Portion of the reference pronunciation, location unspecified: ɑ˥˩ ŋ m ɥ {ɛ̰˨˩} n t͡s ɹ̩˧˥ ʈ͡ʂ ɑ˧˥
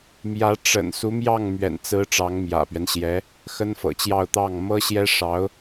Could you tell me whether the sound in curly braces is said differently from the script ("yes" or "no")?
no